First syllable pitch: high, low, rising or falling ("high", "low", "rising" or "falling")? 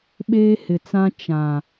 high